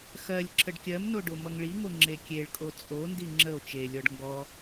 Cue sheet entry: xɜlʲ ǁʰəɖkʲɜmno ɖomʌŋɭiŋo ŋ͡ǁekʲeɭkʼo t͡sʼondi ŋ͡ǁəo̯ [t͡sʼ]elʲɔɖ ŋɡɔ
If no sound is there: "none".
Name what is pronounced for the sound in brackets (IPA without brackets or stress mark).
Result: t͡ʃ